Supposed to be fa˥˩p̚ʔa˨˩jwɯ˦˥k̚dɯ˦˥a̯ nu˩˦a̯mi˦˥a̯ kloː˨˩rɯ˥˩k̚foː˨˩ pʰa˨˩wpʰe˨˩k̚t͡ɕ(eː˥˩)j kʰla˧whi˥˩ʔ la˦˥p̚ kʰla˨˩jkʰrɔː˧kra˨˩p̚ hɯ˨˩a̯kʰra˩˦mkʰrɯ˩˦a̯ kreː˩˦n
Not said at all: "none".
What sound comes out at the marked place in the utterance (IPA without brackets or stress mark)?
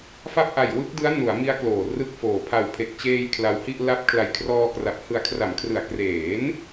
eː˧